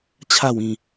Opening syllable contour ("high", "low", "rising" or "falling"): falling